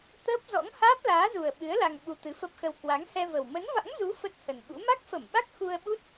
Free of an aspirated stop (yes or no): yes